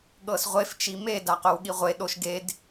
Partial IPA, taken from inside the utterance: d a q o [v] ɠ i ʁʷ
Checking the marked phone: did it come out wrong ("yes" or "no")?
yes